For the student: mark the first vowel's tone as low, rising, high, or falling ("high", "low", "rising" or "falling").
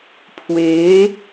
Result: rising